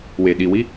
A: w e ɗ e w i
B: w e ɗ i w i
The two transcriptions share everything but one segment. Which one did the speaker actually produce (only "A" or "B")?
B